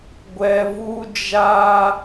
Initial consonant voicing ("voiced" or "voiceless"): voiced